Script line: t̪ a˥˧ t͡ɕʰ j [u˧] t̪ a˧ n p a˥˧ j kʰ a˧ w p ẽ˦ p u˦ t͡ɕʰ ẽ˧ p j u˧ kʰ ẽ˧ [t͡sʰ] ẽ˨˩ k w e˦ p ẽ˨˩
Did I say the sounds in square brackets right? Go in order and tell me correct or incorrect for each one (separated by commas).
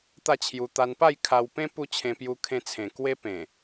correct, correct